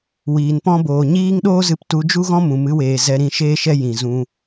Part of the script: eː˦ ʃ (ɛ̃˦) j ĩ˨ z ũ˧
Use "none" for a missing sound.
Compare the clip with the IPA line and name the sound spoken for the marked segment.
ɛ˦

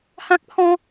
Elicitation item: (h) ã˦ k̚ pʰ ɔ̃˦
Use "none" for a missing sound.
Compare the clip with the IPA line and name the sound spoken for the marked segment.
h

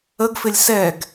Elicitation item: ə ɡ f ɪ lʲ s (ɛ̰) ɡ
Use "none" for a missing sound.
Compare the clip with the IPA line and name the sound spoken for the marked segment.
ɛ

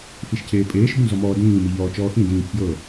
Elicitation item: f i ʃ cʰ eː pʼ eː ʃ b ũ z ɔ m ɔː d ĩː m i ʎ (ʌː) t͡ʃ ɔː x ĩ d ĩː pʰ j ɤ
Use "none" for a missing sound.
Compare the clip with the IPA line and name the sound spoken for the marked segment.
ɔː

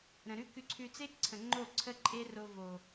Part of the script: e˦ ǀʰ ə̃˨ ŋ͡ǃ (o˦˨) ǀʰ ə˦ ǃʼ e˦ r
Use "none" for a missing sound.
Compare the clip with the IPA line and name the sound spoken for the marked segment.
o˦˨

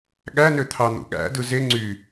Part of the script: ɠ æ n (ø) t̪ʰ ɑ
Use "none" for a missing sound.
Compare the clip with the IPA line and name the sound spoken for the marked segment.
ø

